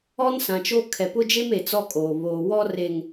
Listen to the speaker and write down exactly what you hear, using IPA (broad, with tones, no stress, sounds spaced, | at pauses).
ɔ˦ n s ã˨ t͡ʃ o˦ kʰ ɛ˨ p ʊ˦ d͡ʒ e˦ m e˨ t͡s ɔ˦ kʼ oː˨ β oː˨ w ɔ˦ r e˨ ŋ